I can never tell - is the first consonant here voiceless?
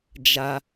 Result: no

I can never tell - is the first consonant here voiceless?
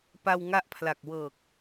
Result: yes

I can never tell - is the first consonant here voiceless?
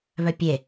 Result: no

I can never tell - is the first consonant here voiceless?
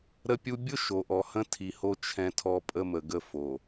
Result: no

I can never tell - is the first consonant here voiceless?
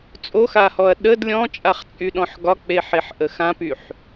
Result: yes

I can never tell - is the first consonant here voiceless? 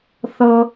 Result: yes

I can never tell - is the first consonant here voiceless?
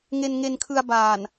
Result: no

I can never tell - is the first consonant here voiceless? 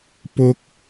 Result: yes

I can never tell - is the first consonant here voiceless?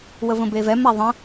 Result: no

